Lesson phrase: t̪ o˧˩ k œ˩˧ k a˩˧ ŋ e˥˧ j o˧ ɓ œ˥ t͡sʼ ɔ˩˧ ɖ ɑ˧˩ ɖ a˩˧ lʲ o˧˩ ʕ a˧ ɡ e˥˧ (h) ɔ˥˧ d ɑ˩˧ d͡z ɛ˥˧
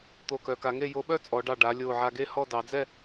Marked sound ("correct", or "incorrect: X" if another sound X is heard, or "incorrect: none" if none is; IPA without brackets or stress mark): correct